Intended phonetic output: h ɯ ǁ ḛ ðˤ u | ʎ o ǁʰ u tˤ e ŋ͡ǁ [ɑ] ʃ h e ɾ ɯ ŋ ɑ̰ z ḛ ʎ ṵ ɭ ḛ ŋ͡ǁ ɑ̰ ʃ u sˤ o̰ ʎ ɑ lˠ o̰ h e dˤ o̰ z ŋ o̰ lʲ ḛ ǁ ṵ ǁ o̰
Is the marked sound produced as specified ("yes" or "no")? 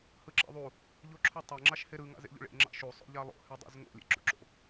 yes